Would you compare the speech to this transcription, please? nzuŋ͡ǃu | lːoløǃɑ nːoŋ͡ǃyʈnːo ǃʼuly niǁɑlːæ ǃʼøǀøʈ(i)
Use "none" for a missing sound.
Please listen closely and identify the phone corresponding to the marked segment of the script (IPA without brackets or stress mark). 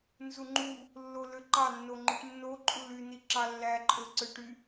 y